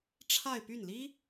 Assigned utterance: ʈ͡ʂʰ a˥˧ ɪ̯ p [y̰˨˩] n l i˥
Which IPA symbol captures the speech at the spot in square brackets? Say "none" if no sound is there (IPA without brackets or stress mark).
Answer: y˥˩